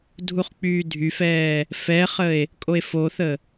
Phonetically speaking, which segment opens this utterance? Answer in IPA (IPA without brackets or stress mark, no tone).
dʱ